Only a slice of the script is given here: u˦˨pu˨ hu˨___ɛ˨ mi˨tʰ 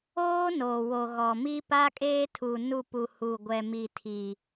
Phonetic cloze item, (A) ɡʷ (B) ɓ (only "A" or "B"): A